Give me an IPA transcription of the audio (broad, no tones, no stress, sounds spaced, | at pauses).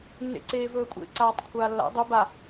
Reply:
nː ḛ ǀ eː v ɵː kʷʼ ḛ ǀ aː tˤ kʷʰ aː lː a̰ dˤ ɵ b a